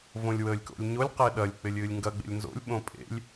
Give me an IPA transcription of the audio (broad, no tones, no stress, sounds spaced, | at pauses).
v õ lʲ w əː lʲ k o̰ lʲ ɲ o lʲ q e ɗ ɐ lʲ k͡p ɪ lʲ ɨː lʲ ŋ ɡ ɐ ɡ͡b ḛ lʲ n z o̰ lʲ ɓ õ pʼ ḛ lʲ